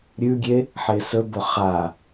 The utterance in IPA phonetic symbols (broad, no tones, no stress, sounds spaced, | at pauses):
ɾʲ ʉ ɡʲ e | ħ e s ɵ b o χ a